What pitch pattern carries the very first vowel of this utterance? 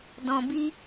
low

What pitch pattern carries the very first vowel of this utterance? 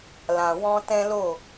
low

